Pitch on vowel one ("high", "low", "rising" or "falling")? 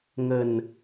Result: low